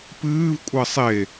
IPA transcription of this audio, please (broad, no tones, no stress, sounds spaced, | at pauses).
p ɨː v kʷʼ ɐ sˤ e